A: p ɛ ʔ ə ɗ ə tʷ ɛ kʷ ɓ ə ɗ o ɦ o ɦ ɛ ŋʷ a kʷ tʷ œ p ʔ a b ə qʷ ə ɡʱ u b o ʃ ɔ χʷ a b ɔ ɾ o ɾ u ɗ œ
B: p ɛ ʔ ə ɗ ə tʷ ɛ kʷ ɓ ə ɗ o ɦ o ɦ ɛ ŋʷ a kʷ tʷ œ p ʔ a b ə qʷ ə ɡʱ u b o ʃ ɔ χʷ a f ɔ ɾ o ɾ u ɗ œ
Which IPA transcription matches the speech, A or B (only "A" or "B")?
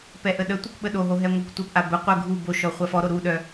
B